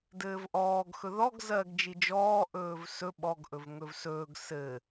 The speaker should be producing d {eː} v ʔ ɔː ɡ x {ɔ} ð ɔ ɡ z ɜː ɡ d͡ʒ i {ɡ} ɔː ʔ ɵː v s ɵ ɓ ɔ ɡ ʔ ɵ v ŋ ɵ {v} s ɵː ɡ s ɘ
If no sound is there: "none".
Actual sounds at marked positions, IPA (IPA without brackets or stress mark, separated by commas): ɘː, ɵ, d͡ʒ, v